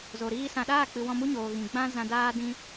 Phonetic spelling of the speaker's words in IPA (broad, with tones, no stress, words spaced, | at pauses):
zo˨ɾiː˧ sã˨ɗaː˦˨k͡pɨ˨ wɔ̃˧mu˦ɲoː˨ ɣĩ˨ ɡ͡bã˦ zã˧ daː˦dĩ˦